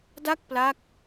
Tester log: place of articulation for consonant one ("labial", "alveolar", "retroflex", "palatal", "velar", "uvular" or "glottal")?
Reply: alveolar